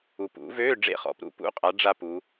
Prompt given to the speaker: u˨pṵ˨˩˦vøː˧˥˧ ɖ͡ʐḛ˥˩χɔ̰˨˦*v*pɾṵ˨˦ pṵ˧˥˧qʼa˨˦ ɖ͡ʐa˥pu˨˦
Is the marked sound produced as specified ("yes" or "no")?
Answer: no